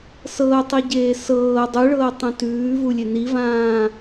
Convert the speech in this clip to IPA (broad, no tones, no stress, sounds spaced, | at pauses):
s ɤː tˤ i ɟ eː s ɤː dˤ u ɭ ɤː tˤ ũ t ʉː v u lʲ e n i v ãː